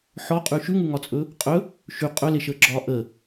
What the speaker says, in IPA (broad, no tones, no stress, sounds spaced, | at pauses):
ħ ɔ qʼ ʉ ʃ ʉ ŋ ʉ ŋ ɒ t͡sʼ ɵ | qʼ ɵ | ʃ ʉ qʼ ɵ l e ʃ əː ɡ͡ǁ ɒː ʔ ə